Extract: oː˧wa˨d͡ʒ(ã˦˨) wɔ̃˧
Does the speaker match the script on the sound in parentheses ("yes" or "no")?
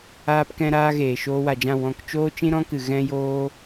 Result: yes